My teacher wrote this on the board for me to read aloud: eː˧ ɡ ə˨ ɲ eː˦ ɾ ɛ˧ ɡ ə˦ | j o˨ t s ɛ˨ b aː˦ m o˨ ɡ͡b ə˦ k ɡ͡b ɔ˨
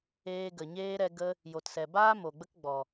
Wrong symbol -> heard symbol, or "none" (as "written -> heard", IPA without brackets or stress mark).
none